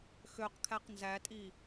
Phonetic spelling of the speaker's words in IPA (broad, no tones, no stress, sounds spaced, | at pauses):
x ø q kʰ æ q n z æ tʼ i